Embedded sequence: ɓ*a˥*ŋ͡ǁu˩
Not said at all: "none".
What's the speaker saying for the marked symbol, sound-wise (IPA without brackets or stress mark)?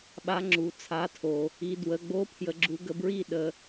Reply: a˨˥